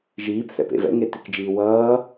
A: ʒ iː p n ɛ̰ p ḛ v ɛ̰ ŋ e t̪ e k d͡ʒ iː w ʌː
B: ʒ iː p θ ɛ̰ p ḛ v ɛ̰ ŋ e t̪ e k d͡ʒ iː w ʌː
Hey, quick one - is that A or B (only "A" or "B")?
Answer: B